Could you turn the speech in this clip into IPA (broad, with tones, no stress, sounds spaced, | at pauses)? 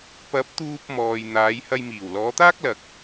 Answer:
p ɐ˨˥ p̚ t̪ uː˧ p̚ m ɔː˨ j n̪ aː˨˧ j h ɐ˧ j m iː˨˩ w l ɔː˨˧ t̪ aː˥ k̚ l ɐ˨ k̚